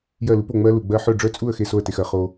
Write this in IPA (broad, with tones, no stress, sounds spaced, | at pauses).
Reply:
j ɜ˥˨ l u˦˥ p o˥˨ ŋ͡m ɜ˦˥ l u˨ ɡ͡b ɜ˦˥ ħ œ˥˨ ɖ͡ʐ œ˦˥ t͡sʼ u˥˨ ə̯ x e˥˨ s o˥˨ ə̯ t e˨ x ɜ˨ χ o˨